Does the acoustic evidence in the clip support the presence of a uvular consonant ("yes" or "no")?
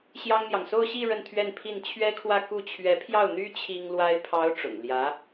no